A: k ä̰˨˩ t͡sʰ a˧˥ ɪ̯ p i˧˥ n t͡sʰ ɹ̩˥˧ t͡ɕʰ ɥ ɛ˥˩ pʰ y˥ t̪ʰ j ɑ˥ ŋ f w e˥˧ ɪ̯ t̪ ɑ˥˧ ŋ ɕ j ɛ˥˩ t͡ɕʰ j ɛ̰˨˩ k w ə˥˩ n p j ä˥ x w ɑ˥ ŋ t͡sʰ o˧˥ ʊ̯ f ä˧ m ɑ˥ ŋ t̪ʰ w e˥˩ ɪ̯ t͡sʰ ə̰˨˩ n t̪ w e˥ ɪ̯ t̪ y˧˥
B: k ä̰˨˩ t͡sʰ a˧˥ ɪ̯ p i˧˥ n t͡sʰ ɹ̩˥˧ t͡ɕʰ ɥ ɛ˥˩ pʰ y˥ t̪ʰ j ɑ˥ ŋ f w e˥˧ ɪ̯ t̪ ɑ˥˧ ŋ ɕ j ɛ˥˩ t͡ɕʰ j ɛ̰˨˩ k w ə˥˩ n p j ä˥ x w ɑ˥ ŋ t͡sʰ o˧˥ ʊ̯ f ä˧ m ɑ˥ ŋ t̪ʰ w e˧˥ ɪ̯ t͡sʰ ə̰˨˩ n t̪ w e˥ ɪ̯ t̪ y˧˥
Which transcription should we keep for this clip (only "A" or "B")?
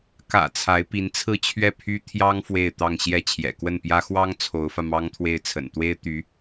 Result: A